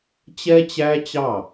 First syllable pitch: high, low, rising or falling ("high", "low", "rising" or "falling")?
high